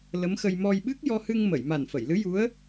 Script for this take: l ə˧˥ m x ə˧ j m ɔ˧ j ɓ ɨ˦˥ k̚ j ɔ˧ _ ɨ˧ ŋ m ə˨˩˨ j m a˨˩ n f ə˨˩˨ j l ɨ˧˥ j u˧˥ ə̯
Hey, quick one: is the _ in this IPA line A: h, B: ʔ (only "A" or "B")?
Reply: A